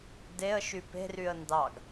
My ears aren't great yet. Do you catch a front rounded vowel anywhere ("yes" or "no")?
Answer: yes